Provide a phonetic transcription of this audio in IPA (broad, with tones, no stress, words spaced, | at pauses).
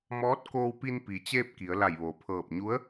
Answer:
mɔː˧˥t̚koː˧wpi˧n pi˩t͡ɕeː˧p̚ ki˩˧ə̯la˧˩jʋoː˩ pʰɤː˧˩p̚ ɲu˧˥ə̯